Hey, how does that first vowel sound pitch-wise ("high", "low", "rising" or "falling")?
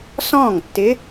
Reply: falling